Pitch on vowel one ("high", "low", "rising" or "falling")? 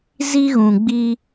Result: high